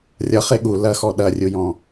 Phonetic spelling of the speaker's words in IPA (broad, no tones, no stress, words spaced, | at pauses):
rʲʌχe ɠu lɐxɔ ɗɐrʲujɔ̃